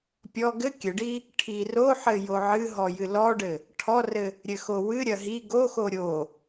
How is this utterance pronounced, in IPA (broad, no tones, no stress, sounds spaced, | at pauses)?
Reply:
pʲ ɔ ɡ ɘ kʲ ɘ ɖ i | ʈʰ i r o ħ ɘ j o ʕ ɨ ɦ ɔ j ɨ l ɔ ɖ ɘ | ʈʰ ɔ r ɘ | ɾʲ ɘ x o w ɨ ɾʲ ɐ ɦ i ɡ o x o ɾʲ o